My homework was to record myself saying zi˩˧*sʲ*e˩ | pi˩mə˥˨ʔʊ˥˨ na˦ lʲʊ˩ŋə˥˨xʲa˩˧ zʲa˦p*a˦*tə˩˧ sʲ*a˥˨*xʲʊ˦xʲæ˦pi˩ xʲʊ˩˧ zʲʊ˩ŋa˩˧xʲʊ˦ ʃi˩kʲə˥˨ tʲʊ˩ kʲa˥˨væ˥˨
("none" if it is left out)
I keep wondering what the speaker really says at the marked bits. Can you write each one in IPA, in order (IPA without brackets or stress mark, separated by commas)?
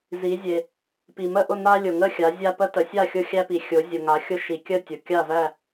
zʲ, ə˦, a˥˨